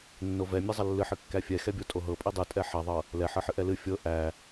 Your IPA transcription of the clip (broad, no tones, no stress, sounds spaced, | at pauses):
nː o v ɛ mʲ ɛ zˤ ɐ lː ɨ ħ ɨ kː æ fʲ ɛ x ɛ bʲ o tʼ o ɦ ɤ pʼ i dˤ ɨ tʼ ɛ ħ ɐ ðˤ ɤ | l ɛ ħ ɤ ħ ɨ ʔ ɛ l ɨ fʲ ɤ ʔ æ